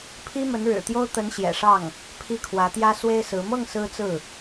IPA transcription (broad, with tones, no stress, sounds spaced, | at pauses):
pʰ i˥ m ə˧˥ n ɻ ɻ̩˨˩ t̪ j o˥ ʊ̯ t̪ ə˧˥ n ɕ j ɛ̰˨˩ ʂ ɑ˥˩ ŋ | pʰ i˥˩ kʰ w ä˧˥ t̪ j ä˥ s w e˥ ɪ̯ s ɹ̩˧˥ m ɤ˥˩ ŋ s ɹ̩˥ t͡s ɹ̩˥˩